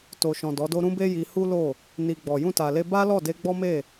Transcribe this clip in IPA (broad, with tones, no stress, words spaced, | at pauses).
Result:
to˨ʃɔ̃˨ dɔ˨˦do˦ ɾũ˦be˦ji˧ hu˦lo˦˨ | ni˨ ɡ͡bɔ˨ jũ˧ta˨le˧ ba˦lɔ˦˨de˧ ɡ͡bɔ˦me˦˨